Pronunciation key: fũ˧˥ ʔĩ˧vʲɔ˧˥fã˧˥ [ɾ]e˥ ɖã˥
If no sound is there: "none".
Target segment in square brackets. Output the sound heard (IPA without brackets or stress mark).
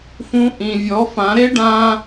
ɾ